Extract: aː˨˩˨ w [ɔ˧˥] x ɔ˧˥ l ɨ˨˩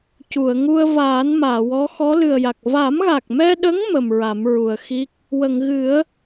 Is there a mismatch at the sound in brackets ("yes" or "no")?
no